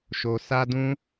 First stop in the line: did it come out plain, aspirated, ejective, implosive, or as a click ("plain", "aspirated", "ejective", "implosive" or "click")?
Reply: plain